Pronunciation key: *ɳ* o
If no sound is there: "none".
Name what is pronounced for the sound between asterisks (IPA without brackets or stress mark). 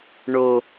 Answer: ɳ